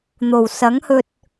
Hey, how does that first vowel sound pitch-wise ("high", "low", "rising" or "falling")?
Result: low